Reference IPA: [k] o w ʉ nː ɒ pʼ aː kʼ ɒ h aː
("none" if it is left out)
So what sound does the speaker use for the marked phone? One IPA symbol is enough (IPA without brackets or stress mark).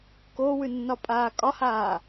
k